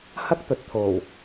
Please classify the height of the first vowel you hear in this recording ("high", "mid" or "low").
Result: low